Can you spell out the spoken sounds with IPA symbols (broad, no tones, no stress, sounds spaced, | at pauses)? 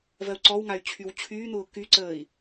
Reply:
v ɜ u̯ ǀ ɔ w ŋ a y̯ t͡ɕʰ y w t͡ɕʰ yː n̪ ʊː k y ǀ əː i̯